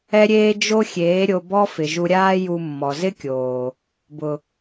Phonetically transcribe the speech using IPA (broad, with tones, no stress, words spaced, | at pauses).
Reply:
ɛ˦ɾʲeː˦ d͡ʒo˦xʲeː˨˦ ɾʲo˧bɔ˦fɪ˨ ʒu˧ɾʲaː˦ ju˧mːɔ˨zɪ˦kʲoː˨ | bʊ˨